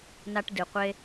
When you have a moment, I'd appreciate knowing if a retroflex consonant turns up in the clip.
yes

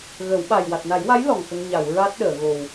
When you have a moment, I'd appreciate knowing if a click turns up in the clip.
no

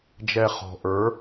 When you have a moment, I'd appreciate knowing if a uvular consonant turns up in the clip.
yes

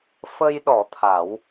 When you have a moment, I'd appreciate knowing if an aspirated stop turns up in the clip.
yes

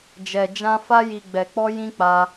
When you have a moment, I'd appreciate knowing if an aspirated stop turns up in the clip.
no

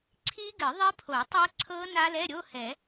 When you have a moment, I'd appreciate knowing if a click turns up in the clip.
yes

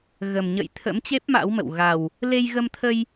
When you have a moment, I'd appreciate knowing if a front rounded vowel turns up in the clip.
no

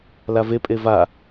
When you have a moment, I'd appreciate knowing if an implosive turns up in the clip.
no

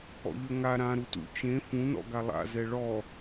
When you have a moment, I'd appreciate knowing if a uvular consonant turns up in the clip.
no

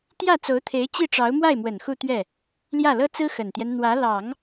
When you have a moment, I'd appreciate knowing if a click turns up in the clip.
no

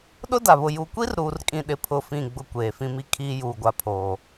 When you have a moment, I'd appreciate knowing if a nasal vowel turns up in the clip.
yes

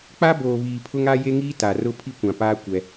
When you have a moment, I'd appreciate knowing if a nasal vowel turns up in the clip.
yes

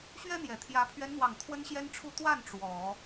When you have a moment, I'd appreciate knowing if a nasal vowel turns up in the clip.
no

